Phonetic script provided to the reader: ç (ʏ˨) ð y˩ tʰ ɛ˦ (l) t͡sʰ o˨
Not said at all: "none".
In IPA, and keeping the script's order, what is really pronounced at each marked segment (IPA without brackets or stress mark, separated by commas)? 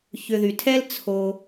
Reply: ʏ˨, l